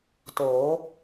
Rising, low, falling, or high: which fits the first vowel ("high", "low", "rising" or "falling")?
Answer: rising